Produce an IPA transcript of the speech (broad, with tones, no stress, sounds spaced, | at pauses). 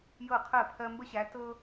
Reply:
j ɤ˥˩ qʰ ɜ˥˩ pʰ ɜ˦ m b ə˦ ɕ æ˨˦ t ɤ˦